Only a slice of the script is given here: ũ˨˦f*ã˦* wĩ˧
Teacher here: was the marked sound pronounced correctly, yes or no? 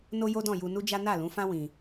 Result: yes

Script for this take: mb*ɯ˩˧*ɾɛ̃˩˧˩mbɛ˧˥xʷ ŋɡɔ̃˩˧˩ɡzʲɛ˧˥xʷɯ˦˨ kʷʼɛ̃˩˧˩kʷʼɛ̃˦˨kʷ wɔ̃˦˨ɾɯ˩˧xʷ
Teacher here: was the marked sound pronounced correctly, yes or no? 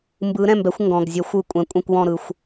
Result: no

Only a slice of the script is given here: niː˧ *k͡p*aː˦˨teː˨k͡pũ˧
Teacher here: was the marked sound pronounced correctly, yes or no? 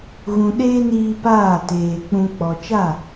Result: no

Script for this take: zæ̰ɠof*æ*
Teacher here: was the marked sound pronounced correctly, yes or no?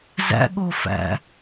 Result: no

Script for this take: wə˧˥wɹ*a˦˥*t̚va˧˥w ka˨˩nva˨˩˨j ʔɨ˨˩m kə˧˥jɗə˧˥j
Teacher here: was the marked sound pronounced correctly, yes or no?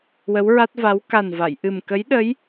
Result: yes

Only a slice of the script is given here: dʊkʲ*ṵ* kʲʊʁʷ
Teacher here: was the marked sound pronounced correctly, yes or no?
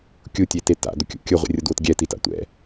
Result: yes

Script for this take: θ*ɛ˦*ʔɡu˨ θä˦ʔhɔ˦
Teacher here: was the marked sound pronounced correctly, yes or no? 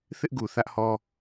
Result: no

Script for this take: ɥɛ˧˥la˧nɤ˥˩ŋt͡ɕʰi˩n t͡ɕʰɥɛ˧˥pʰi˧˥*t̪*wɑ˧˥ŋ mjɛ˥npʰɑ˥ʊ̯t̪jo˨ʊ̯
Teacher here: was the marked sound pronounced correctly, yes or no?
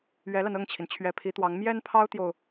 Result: yes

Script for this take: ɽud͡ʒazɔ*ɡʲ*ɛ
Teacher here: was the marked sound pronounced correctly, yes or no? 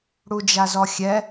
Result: no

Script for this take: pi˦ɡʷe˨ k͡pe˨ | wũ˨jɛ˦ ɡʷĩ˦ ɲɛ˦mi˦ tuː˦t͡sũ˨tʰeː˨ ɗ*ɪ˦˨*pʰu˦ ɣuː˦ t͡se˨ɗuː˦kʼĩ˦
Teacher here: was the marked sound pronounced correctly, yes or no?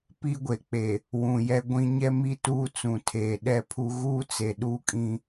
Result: no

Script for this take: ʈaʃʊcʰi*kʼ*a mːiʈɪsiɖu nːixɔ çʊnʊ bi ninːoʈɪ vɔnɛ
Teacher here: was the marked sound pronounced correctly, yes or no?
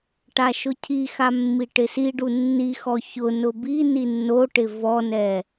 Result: no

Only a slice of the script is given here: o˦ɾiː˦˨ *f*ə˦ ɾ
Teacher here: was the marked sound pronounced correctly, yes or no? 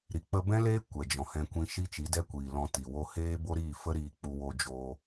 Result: yes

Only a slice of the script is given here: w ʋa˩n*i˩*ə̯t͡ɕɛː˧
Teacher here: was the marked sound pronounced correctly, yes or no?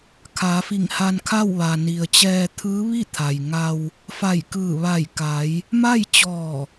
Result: yes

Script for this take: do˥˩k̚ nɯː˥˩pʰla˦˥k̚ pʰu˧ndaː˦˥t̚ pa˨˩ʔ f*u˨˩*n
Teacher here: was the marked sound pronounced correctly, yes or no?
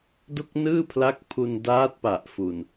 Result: yes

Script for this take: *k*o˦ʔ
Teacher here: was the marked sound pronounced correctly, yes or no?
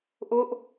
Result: no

